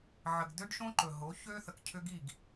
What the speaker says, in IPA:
ʕ ə˨ ɡ d ø˦ ɖ ʃ õ˦ ǃ ɵ˨ ɦ o˨˦ ç ø˦ θ ə˨ k cʰ ʏ˦ ɡ i˦˨ ɡ

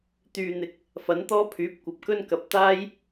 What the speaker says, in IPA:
t̪ yː˨ n̪ ɪ˨ k̚ | f ɐ˨˥ n t̪ ɔː˥ pʰ yː˨˥ p̚ kʷ ɐ˨ p̚ k ɵ˥ n k ɐ˨˥ p̚ t̪ aː˥ j

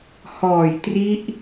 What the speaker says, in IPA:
h ɔː˨˩ j t r i˦˥ ʔ

